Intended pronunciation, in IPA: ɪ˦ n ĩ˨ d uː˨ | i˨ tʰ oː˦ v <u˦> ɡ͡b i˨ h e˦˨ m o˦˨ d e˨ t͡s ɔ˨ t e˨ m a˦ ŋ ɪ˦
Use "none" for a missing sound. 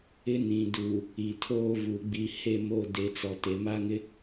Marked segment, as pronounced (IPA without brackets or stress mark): u˨